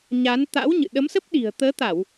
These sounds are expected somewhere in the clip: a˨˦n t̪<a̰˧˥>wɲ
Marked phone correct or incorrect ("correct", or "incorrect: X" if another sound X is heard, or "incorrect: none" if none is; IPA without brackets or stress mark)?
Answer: correct